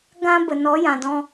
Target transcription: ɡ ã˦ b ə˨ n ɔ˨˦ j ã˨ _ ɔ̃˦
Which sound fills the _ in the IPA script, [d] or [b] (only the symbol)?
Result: d